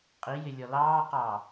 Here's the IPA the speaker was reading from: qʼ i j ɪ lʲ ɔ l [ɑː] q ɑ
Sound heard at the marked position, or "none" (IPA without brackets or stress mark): ɑː